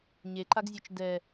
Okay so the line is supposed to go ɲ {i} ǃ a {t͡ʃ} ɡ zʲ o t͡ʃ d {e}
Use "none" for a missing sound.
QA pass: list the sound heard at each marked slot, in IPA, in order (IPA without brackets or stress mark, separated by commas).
e, none, ɛ